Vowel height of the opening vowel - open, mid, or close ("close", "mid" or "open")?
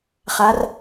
open